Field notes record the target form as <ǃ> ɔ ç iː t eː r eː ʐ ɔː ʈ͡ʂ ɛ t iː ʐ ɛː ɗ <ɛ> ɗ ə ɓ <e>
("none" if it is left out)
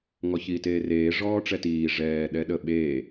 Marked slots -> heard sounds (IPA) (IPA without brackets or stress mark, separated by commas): ŋ, ɛ, eː